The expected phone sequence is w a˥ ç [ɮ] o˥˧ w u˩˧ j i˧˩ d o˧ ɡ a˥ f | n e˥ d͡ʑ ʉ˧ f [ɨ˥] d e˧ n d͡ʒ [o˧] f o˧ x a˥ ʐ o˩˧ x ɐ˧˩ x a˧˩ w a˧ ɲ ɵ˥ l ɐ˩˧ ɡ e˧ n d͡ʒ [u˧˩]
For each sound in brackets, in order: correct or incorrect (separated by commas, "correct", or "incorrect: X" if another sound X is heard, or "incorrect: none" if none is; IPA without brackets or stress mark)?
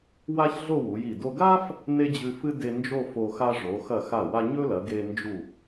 correct, correct, incorrect: o˥˧, correct